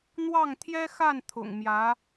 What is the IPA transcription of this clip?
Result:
n̪wɑ˥˩ŋt̪ʰjɛ˥xa˥˩n t̪ʰʊ̰˨˩ŋmjä˧˥

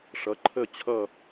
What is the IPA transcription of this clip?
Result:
ʂʌ˩˥ǃʰə˦˨ t͡ɕʰʌ˦˨

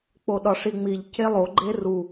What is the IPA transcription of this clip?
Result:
k͡poɗɒʂiŋ͡miʎ celˠoɡ͡ǃe ru

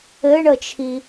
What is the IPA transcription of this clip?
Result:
ɘɳət͡ʃʰi

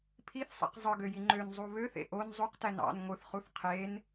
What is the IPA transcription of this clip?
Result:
pʰiθsˤḛq zˤɯɡøji ŋ͡ǃønzˤu βøθḛ ʔon zˤuqtæn ɑ̰n ŋʷɯθχuθ qʰen

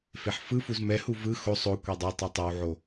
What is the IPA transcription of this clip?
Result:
feħfɯfuz mɛhu vɯ xo sˤo kʷɛdˤɤtˤɛ tˤawʕo

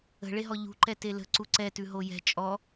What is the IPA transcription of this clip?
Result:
ə̤ɭeɦɔ ʎṳǃɛte lə̤ ǀuǀɛtʉ ɦojɛ̤ t͡ʃʼɔ

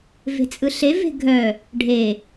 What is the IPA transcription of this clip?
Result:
ve̤t͡sʼɯɬe ve̤ɡʱœ | ɖʱe

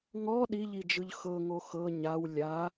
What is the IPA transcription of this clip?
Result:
ŋɔ ɗiʎid͡ʒɯʎ xɤŋo xɤ ɲaw lʲa

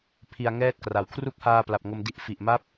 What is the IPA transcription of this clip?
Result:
pʰi˧a̯ŋɛː˥˩t̚kra˩˦w kʰru˥˩k̚haː˧pla˨˩p̚ ŋo˧mdi˦˥ʔ fi˨˩ʔma˥˩p̚

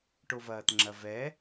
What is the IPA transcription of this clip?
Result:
ʈovɐːtŋ͡ǁɐvɛ

